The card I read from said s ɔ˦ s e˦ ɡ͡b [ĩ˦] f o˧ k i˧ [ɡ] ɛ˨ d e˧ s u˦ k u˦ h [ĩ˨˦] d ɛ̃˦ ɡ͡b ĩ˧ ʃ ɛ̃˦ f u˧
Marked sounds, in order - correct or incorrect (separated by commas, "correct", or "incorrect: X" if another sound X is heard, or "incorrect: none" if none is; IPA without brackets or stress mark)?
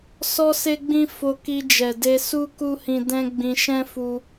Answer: correct, incorrect: d͡ʒ, incorrect: ĩ˧